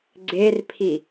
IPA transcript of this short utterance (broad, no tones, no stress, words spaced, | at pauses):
ɡ͡ǀerpʰi